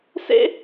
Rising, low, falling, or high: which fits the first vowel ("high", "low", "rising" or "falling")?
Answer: high